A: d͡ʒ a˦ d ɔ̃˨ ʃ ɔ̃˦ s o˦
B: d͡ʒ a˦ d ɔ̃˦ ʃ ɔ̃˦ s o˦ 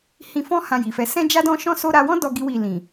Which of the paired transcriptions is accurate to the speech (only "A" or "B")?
B